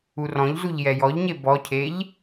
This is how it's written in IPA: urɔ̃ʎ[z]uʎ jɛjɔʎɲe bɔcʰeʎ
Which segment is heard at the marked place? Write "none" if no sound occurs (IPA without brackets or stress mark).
z